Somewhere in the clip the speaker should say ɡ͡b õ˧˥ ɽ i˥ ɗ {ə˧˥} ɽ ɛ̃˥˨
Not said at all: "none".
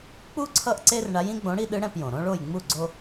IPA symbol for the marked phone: ɯ˧˥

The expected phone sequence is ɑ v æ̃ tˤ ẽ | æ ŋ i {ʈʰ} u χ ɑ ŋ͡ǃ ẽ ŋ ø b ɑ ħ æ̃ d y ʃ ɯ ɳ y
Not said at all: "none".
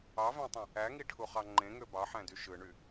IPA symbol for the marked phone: ʈʰ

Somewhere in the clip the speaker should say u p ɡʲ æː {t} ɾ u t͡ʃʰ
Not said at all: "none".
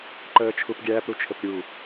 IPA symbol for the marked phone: p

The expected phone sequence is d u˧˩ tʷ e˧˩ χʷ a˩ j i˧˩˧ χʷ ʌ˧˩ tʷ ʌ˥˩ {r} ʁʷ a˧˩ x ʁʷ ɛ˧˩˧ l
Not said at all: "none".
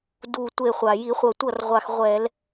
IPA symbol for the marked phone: r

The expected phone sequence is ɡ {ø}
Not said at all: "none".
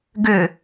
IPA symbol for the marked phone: ø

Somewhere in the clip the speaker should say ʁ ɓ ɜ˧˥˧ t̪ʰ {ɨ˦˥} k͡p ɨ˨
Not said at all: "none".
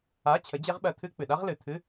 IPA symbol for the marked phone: ɨ˦˥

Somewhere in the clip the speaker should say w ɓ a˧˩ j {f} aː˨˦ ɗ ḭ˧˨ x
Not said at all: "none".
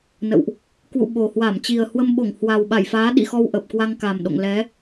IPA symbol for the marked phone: f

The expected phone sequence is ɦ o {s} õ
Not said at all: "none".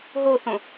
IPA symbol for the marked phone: θ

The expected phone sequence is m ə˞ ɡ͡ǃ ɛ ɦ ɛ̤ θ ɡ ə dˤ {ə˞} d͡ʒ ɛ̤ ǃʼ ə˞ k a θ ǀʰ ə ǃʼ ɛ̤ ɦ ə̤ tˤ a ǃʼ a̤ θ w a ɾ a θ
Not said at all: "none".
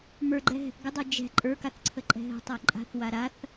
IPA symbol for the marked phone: ə˞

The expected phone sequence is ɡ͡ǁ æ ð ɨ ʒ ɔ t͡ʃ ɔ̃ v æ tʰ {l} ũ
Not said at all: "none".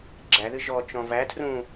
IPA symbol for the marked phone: r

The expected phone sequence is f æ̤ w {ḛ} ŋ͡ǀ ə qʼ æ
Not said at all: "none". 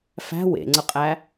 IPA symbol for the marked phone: ḛ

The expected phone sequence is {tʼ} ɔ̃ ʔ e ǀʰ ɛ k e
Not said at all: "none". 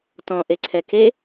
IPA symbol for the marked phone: t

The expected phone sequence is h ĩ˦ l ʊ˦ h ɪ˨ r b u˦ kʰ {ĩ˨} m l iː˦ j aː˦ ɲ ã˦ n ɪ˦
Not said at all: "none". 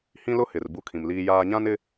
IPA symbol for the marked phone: ĩ˨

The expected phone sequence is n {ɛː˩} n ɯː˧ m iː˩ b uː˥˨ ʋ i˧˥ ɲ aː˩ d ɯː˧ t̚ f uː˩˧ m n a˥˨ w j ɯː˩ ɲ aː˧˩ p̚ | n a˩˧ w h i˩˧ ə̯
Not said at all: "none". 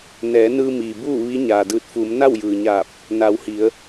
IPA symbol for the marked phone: ɛː˩˧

